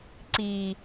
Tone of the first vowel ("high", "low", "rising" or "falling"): low